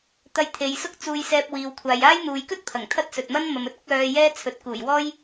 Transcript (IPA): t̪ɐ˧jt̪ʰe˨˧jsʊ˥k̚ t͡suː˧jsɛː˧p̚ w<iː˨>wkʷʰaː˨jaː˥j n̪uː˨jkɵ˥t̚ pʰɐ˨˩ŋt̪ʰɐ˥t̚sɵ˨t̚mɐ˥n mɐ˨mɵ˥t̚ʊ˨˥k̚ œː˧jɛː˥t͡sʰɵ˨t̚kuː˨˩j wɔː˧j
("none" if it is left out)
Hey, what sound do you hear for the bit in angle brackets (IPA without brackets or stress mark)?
iː˨